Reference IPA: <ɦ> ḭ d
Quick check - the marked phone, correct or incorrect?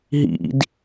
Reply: correct